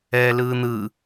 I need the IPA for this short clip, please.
ɛːlɯːn̪ɯ

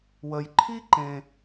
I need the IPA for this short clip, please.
wə˩jǃʰi˥ǃẽ˩

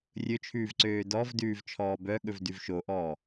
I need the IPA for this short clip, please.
rʲɵt͡ʃʰʉːvǀøː dɔvdʉːvt͡ʃʰɔː bœɠɵvdʉv ʃoʔɔː

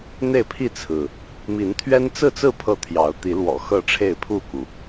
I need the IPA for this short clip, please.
n̪e˥˨ɪ̯pʰi˥˨t͡sʰɹ̩˩ | mi˨˦nt̪ʰɥɛ˦nt͡sɹ̩˥˨t͡sɹ̩˥˨ pʰɤ˥˨t̪ʰjɑ˨˦ʊ̯ t̪i˨˦lwɔ̰˨˩xɤ˥˨ ʈ͡ʂʰe˥˨ɪ̯pʰu˥˨ku˩

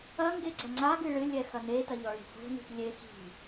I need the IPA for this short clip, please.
ɐŋɡe ɡ͡ǀɐŋ͡ǀaɡɨ ɭɨlʲɛ xɐnetɐ ʎɔɭi̤ho̤ni̤p lʲe xi̤

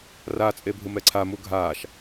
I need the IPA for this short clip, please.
ra t͡sʼebʱɯmɛǀʰa muɡʱaːʃ

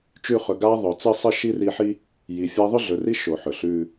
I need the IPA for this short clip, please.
t͡ʃʉ˦χɵ˨ ɡa˥ ðˤɵ˩t͡sɨ˦sˤi˦ ʃi˥ri˦ħi˥ | ji˨fʲa˥ ðˤʉ˥ɮɵ˨ri˥ ʃo˨ħɵ˩ɬʉ˦

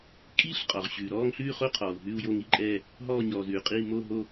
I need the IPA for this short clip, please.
kʼiː˥˧ɬ qʼɔ˨ʁɕʉː˨ ɾɔː˥˧ŋɬʉː˥˧χo˥˧qʰɔː˨u̯ ɦʉ˥˧u̯jo˥˧ŋi˥˧ǃʼɛː˥˧ | ɦɔː˥˧ɲɔː˨zʉː˨qʼiː˥˧ mo˥˧ɦo˥˧

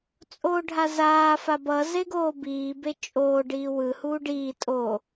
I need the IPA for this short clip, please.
t͡sʼoːɖʱazaː fabʌ zeɡoːbiː bet͡ʃʼoː ɖiːwɯ huːɖiː tʼo

